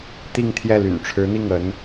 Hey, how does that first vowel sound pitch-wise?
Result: falling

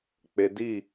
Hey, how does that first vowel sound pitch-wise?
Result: low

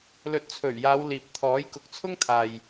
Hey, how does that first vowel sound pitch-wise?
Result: rising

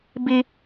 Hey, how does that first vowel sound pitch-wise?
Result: high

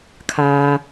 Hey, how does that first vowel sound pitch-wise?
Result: low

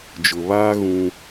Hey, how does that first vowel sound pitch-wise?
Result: low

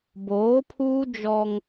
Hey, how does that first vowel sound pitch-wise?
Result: rising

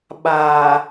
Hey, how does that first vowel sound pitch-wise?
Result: low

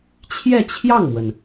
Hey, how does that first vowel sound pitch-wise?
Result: falling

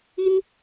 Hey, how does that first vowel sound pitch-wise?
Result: high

